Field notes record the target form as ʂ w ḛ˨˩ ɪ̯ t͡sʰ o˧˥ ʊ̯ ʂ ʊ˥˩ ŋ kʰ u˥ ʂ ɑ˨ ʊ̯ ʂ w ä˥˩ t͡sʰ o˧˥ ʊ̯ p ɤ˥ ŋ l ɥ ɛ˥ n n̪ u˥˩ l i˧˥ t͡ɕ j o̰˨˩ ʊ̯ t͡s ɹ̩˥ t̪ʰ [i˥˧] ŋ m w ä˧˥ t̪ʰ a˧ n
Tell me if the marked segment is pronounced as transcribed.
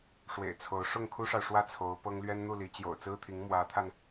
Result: no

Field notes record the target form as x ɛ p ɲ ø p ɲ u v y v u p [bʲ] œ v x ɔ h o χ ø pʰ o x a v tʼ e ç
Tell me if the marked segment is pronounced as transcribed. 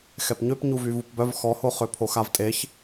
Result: no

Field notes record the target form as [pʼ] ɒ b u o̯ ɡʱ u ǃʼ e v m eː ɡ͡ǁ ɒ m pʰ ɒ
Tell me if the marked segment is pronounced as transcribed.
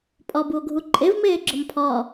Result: yes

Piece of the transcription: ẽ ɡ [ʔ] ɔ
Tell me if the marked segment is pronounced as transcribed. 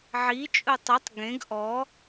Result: yes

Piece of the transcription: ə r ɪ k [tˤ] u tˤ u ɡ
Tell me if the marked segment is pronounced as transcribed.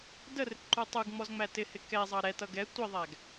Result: no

